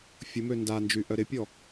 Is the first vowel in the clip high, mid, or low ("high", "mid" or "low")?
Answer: high